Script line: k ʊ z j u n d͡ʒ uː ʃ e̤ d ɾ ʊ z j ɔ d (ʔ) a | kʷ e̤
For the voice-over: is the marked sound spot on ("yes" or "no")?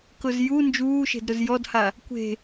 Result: no